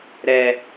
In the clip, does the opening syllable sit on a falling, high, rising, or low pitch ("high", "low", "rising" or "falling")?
high